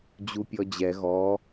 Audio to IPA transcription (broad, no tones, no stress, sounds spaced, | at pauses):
d͡ʑ u pʲ ɔ d͡ʑ ɛ ɣ ɔ